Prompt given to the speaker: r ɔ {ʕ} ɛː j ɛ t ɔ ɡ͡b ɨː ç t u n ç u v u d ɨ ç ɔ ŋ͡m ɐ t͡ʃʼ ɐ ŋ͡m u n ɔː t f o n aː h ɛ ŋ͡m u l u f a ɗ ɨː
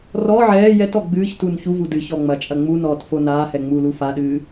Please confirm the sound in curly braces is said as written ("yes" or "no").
yes